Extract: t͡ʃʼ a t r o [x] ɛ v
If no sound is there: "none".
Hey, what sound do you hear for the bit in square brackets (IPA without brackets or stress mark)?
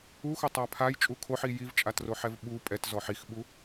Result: ħ